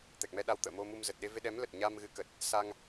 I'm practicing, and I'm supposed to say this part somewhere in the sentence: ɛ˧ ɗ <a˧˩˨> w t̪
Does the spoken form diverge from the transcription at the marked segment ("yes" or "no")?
yes